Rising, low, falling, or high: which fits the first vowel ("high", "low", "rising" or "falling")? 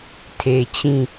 low